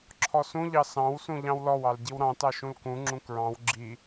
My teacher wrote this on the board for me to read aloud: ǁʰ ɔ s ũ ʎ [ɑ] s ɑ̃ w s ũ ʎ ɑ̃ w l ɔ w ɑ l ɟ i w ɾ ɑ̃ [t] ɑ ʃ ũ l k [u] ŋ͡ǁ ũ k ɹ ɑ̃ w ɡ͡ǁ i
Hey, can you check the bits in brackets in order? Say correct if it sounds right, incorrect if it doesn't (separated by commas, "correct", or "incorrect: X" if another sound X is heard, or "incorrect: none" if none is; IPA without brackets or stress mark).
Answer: correct, correct, incorrect: ũ